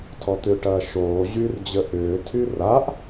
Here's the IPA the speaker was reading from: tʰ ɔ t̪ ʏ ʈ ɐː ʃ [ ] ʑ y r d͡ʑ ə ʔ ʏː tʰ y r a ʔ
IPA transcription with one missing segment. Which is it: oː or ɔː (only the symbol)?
oː